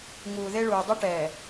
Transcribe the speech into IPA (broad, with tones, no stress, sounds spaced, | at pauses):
ŋ uː˨ ð e˦ ɭ uː˨ dˤ u˦ ʈ ɛː˨